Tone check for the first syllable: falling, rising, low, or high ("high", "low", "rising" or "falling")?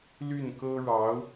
falling